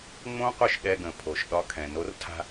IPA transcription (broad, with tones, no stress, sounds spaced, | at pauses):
ŋ͡m õ˦ qʷ ə˞˦ ʃ ɗ ɛ˧ ɡ ə̃˨ pʰ o˨ ʃ ɗ ɒ˧ kʰ ɛ̃˨ n o˨˦ r tʰ a̤˧